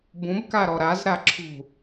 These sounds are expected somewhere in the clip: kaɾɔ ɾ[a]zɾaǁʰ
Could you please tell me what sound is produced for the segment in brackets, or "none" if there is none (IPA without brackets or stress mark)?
a